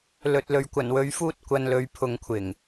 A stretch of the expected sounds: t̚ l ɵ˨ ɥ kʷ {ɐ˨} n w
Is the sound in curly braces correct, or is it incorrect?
incorrect